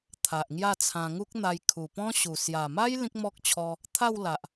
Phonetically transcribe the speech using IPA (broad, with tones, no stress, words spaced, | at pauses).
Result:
t̪ʰa˨ʔŋja˥˧t͡sʰã˧ ŋu˦k̚n̪a˧j kʰu˨˩ pɔ̃˦ɕu˨˩ sja˨˩ma˦j lĩ˦k̚mɔ˦k̚t͡ɕʰɔ˧ | t̪ʰa˥˧wla˨ʔ